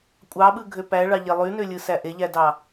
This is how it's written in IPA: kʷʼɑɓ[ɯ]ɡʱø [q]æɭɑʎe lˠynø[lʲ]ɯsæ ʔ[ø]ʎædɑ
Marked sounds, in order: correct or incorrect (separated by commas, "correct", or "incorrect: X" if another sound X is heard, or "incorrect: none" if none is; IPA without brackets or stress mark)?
correct, incorrect: p, correct, incorrect: e